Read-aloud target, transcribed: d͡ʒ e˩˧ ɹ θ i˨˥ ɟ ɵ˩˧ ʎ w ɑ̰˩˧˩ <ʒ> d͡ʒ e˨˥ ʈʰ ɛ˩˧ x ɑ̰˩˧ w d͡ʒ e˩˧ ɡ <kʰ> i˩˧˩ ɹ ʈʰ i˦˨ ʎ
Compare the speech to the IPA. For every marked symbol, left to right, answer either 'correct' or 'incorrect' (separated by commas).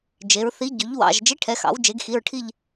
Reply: correct, incorrect